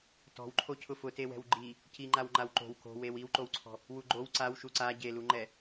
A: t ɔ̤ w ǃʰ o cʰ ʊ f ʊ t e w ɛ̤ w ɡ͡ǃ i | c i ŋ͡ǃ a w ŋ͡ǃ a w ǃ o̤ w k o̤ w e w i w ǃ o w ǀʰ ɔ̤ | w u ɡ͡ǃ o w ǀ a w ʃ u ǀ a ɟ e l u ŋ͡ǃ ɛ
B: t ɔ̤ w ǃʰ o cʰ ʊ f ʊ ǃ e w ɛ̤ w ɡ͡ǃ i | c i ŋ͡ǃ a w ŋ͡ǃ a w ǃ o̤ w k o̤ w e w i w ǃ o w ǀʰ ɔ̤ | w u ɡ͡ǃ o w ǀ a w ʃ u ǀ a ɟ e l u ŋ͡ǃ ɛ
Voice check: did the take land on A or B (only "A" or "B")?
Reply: A